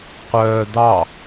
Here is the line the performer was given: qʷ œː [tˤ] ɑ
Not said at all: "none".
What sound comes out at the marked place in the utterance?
d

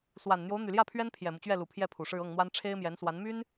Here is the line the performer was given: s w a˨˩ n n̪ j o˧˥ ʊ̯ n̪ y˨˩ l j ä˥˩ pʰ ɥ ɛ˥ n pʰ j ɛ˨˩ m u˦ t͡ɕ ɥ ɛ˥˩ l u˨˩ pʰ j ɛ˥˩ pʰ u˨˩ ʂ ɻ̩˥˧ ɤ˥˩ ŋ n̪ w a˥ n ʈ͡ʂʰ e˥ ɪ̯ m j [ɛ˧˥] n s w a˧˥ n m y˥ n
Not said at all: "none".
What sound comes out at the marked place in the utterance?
ɛ˧˥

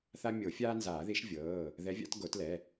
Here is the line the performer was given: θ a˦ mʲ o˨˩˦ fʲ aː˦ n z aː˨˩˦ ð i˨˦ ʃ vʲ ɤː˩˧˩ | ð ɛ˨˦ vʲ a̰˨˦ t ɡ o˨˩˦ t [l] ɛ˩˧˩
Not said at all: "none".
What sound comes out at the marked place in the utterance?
l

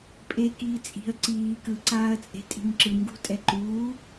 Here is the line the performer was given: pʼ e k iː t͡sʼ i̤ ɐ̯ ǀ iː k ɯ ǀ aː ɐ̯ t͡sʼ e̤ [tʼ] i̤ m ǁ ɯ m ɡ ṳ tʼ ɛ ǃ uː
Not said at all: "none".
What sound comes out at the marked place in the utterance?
tʼ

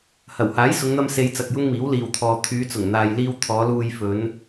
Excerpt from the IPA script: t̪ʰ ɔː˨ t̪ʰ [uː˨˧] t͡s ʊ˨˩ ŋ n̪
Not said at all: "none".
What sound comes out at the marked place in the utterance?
yː˨˧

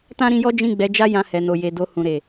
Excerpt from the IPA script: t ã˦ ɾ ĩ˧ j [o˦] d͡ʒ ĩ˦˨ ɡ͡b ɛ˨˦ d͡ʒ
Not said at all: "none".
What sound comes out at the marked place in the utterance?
ɔ˦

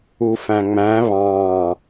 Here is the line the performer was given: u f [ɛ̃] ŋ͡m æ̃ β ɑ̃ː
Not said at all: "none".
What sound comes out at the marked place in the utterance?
æ̃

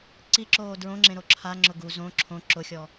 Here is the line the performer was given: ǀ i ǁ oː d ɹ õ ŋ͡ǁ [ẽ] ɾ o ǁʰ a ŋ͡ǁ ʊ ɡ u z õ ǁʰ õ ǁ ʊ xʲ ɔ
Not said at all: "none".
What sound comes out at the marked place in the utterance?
ẽ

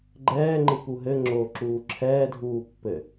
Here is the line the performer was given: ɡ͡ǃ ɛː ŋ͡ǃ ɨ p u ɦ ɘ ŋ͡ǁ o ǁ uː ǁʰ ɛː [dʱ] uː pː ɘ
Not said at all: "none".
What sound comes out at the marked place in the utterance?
dʱ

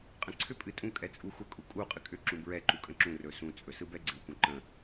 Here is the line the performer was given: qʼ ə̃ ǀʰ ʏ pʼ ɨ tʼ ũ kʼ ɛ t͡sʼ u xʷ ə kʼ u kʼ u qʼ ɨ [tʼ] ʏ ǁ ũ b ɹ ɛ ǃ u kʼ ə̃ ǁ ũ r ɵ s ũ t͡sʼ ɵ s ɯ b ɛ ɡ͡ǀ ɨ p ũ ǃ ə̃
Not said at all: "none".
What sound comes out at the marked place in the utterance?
kʼ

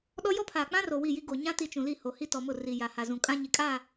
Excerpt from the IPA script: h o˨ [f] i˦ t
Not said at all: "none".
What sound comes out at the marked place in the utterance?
h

